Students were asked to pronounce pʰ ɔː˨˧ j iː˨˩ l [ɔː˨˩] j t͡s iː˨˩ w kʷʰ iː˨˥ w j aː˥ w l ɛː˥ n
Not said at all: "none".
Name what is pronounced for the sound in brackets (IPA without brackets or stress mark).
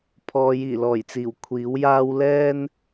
ɔː˨˩